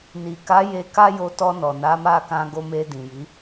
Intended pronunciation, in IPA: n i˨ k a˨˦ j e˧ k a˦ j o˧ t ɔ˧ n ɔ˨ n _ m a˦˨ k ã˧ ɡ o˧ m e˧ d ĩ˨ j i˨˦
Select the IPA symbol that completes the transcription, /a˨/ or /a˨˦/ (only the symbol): a˨˦